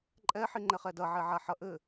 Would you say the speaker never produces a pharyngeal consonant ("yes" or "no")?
no